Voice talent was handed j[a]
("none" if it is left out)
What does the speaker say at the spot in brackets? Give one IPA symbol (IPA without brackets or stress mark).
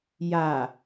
a